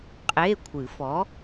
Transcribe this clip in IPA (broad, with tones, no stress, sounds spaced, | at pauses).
qʼ e˧˥˧ kʷʰ ɨ˨˩˦ f ɔ˨˥